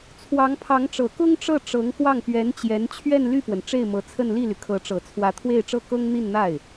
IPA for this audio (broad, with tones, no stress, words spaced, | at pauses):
t͡sʰwɑ˧˥ŋpʰɑ˧˥ŋʈ͡ʂɤ˨˩ kʊ˥ŋʈ͡ʂɤ˥˩ʈ͡ʂɤ˧˥ŋ kwɑ˥˩ŋpɥɛ˧˥nt͡ɕjɛ˧˥n t͡ɕʰɥɛ˥˧nly˥˩pwə˩n ʈ͡ʂe˥˩ɪ̯mɤ˧˥t͡sʰə˥˧n li˥˩ly˩kʰɤ˧˥ʈ͡ʂɤ˨˩ t͡sʰwä˧˥t̪ʰwe˥˧ɪ̯ʈ͡ʂɤ˥˩ kɤ˥ŋn̪i˥˧nn̪a˥˩ɪ̯